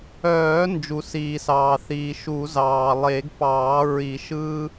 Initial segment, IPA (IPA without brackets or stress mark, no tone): œː